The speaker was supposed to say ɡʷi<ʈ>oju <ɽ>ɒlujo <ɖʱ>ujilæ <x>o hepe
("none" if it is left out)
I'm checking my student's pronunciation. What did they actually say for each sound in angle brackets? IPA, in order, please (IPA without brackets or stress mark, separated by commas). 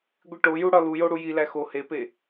ʈ, ɽ, ɽ, x